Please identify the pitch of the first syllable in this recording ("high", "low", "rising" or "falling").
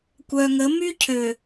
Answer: low